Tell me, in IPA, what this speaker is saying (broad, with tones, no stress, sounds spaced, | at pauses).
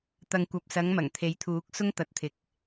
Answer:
t̪ ɐ˨ ŋ kʷ ɐ˨ p̚ s ɐ˨˧ ŋ m ɐ˨˩ ŋ t̪ʰ e˨˥ j t̪ʰ uː˨˥ k̚ s ʊ˥ ŋ t̪ ɐ˨˥ t̚ t̪ʰ ɪ˨˥ k̚